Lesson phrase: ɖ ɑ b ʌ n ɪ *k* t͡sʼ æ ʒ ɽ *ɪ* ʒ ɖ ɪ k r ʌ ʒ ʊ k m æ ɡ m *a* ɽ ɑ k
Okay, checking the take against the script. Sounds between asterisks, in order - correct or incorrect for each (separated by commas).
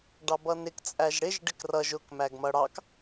correct, correct, incorrect